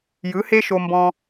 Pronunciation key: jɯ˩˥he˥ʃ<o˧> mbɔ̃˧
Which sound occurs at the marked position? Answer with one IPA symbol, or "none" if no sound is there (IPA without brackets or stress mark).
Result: o˧